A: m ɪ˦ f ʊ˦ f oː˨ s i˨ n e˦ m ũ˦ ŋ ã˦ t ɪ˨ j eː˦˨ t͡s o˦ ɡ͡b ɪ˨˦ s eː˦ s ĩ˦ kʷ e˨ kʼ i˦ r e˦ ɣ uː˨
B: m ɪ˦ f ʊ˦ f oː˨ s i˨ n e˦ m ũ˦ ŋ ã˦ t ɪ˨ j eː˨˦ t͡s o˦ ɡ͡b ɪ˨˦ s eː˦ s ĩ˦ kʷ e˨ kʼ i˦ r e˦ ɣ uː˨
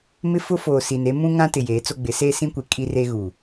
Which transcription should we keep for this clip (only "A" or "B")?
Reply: B